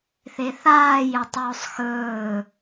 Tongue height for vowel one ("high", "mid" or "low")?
mid